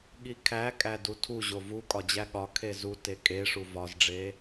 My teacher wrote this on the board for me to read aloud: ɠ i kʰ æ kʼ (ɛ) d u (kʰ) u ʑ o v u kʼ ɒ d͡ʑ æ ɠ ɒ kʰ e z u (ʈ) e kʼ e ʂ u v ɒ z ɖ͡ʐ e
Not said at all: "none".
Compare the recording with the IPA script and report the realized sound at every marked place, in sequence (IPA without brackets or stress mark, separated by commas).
æ, tʰ, t